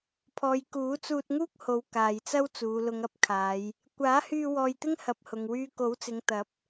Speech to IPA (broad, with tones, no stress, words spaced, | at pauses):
pʰɔː˨j kuː˨˥t͡suː˧t̚ŋuː˥k̚ho˨˧w kaː˨jt͡sɐ˥w t͡suː˨˧lʊ˨˧ŋɐ˧p̚kʰaː˨˧j | kʷaː˨˥hyː˧ wɔː˧jt̪ɪ˥ŋhɐ˨˥p̚ hʊ˨ŋwyː˧ ko˨˥wt͡sɪ˨˧ŋt̪ɐ˨˥p̚